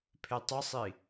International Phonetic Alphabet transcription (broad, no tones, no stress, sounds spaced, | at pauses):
pʰ e tˤ ɯ sˤ i